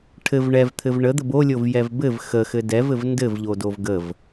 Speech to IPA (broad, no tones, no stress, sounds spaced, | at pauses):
ʈʰ ɘ v ɳ ɛ v t̪ʰ ɘ v ɳ ə d̪ ə b o lʲ o v j ɛ v b ɘ v x ə x ɘ d ɛ v ɘ v n d ɘ v ʎ o d o v ɡ ə v